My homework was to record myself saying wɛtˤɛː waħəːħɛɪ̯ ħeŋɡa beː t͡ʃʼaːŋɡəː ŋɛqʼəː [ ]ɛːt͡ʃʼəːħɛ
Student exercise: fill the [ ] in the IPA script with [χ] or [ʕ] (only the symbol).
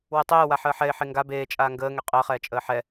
χ